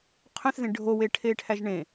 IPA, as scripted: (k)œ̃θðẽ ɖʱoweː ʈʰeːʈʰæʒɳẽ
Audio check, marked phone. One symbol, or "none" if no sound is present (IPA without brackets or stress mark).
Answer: qʰ